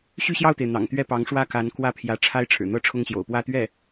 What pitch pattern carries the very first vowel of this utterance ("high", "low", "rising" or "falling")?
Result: falling